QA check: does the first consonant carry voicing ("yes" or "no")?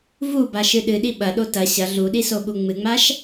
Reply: yes